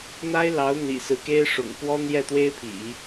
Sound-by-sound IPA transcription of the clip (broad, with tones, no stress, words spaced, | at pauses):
n̪a˥ɪ̯lɑ˧˥ʊ̯n̪ḭ˨˩ sɹ̩˧˥ke˥ɪ̯ʂʊ̰˨˩ŋ kwɔ˥n̪jɛ˥˩t̪we˥ɪ̯pʰḭ˨˩˦